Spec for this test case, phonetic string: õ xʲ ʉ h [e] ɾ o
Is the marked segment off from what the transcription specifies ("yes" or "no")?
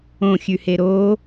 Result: no